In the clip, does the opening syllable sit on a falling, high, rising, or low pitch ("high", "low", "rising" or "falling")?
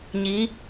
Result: rising